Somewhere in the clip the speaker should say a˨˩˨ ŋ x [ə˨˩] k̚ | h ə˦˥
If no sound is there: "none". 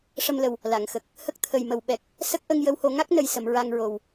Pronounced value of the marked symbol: ə˨˩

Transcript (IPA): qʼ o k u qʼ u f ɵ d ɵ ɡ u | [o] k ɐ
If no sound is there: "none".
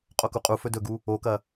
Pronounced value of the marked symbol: o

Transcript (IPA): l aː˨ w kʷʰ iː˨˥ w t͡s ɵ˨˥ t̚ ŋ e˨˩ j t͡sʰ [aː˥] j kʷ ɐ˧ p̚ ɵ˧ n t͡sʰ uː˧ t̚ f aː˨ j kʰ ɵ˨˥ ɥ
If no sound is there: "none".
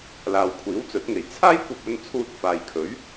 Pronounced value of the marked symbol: aː˥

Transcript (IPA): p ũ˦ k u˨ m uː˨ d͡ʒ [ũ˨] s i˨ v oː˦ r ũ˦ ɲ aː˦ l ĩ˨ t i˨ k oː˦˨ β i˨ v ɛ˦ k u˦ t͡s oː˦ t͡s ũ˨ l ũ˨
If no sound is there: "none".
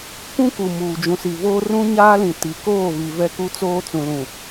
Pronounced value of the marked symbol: ũ˨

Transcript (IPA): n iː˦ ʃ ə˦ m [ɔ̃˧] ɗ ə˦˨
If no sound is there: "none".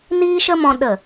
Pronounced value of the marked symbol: ɔ̃˧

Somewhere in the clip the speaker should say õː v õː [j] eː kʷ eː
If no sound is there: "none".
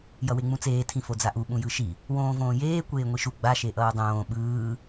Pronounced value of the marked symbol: j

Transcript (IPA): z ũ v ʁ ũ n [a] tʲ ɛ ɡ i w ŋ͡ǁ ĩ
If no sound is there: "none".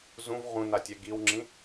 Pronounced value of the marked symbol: a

